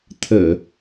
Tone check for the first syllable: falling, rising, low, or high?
low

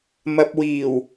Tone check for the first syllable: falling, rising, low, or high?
low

